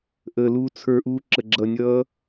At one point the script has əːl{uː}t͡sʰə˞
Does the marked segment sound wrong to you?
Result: no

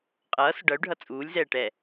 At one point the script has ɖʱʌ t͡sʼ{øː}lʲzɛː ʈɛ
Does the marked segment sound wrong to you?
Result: yes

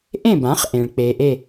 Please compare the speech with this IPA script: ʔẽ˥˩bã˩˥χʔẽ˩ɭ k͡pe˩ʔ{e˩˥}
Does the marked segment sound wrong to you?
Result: yes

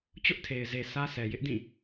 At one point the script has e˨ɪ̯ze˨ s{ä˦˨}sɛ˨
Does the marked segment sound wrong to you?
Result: yes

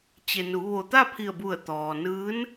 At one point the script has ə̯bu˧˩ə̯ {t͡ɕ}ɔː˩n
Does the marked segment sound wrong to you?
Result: yes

